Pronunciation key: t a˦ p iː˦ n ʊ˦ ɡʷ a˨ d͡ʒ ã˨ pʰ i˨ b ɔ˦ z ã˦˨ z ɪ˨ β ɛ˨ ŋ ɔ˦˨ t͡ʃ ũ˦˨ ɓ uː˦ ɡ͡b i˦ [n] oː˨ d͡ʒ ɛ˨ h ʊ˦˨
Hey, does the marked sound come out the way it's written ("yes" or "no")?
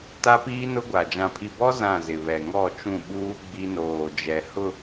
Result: yes